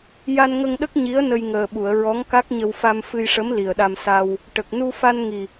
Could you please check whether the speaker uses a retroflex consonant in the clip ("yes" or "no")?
yes